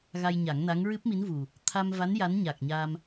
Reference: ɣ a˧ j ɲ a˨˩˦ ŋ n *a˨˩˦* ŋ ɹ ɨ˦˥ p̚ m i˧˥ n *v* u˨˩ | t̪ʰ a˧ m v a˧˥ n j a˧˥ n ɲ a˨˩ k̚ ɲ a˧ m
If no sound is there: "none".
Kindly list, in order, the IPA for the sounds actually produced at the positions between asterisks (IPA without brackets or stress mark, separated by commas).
a˧˥, v